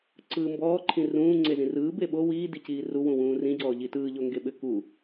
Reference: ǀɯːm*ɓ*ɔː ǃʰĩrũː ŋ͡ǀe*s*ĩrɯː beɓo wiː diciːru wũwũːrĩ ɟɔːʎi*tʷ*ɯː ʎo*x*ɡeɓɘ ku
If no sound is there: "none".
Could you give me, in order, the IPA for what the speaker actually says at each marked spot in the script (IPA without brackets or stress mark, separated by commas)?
b, z, t, ŋ